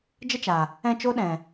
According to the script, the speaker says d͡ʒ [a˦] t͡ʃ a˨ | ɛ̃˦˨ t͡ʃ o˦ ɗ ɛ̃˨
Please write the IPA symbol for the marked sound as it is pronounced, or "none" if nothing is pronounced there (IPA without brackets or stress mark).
ə˦